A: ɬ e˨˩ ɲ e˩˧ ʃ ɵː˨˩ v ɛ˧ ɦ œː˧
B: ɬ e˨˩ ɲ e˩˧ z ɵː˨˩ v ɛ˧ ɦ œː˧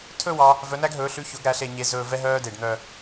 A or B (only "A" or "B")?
B